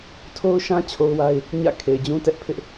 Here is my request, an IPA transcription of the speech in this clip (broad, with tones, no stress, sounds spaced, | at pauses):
tʰ o˦ ʊ̯ ʃ ã˦ t͡ɕʰ o˦ ʊ̯ w a˦ ɪ̯ | ɲ ä̰˦˨ kʰ e˨ ɪ̯ d͡ʑ ũ˦ t ɛ˦ ʔ pʰ ɪ˦ ʔ